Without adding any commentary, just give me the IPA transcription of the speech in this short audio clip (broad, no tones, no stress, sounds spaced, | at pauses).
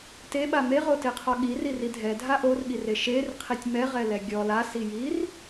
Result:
t e ɓ a m e ʁ o t e qʰ ɔ ɠ i r i r i dʱ ɛ dʱ a ʔ o r ɠ i r e ʃ e r qʰ i tʲ m ɛ ʁ ɛ l ɛ ɡʲ ɔ l a s i j i r